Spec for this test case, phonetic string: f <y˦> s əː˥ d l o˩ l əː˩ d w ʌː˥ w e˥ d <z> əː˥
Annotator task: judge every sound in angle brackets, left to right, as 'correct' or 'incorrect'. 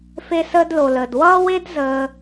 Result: incorrect: e˦, correct

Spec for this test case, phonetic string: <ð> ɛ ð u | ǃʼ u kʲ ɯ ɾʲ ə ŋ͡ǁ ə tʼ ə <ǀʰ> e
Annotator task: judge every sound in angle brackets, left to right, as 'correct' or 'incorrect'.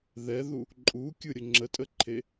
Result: correct, incorrect: ǃʰ

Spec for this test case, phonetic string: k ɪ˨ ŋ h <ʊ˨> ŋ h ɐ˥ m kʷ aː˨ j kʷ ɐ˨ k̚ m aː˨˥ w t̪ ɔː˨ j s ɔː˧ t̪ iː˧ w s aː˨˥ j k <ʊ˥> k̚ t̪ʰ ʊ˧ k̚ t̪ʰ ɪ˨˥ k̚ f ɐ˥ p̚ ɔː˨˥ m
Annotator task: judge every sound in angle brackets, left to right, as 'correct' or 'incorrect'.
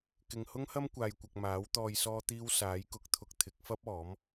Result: incorrect: ʊ˥, incorrect: ʊ˨˥

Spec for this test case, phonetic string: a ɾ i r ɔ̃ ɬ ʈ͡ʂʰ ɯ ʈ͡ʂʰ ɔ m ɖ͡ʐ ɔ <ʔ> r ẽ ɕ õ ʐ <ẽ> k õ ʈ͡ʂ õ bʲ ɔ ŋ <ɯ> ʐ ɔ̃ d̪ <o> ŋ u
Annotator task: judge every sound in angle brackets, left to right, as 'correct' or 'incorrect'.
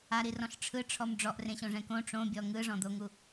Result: correct, incorrect: ɛ̃, correct, correct

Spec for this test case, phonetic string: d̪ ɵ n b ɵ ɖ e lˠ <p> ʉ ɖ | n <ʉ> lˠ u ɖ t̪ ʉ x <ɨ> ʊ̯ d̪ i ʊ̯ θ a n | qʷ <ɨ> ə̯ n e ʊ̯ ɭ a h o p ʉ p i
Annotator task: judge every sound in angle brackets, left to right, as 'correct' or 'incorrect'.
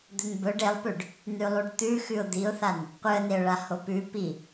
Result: correct, correct, incorrect: ʉ, correct

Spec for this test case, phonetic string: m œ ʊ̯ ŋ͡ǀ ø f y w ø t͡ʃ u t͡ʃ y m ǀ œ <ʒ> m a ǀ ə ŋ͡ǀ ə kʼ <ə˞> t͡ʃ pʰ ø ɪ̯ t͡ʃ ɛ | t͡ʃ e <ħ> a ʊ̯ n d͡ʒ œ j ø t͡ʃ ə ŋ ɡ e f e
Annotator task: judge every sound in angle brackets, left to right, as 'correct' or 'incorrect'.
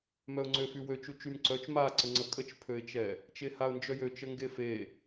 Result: incorrect: t͡ʃ, incorrect: ə, incorrect: h

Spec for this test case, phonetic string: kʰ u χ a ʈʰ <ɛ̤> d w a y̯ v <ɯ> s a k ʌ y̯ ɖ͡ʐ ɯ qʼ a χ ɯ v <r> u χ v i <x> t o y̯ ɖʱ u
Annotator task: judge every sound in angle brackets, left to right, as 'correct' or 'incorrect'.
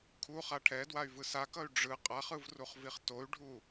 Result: incorrect: ɛ, correct, correct, incorrect: χ

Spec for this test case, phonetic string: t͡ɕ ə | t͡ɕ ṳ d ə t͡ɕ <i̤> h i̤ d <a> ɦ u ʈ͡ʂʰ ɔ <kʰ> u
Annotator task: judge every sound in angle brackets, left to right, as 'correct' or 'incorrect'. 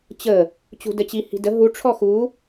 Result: incorrect: i, incorrect: ə, incorrect: x

